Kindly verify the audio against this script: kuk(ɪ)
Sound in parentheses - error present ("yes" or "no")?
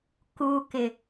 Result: no